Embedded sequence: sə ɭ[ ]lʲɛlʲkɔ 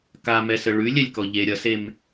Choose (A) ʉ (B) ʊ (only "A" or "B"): A